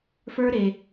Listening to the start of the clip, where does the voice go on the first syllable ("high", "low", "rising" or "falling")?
high